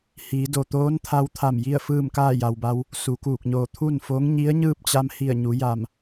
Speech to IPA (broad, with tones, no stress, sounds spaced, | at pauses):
h iː˩˧ d o˩ t̪ oː˧˥ n t̪ʰ a˧ w t̪ʰ a˧˩ m j i˥˨ ə̯ f ɯː˥˨ m k aː˥˨ j a˩ w b a˧ w | s u˩˧ k uː˧˩ k̚ ɲ oː˧˩ t̪ʰ u˥˨ n f o˧˥ ŋ ɲ i˧˥ ə̯ ɲ ɯː˥˨ p̚ t͡ɕ a˧ m h i˧˩ ə̯ ɲ u˩˧ j a˧˩ m